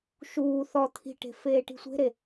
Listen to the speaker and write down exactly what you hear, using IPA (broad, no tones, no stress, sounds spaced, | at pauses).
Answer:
ʃ uː θ ɔ t̪ʰ i̤ ʈ e̤ f eː ʈ i̤ sʷ e̤ ɾ e